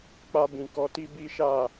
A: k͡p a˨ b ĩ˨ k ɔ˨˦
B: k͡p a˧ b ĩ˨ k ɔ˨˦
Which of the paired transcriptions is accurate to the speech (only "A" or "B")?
B